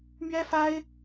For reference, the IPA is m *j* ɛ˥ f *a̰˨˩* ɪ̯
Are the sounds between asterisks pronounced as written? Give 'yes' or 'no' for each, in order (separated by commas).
no, no